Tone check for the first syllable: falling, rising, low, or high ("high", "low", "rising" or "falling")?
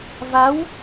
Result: rising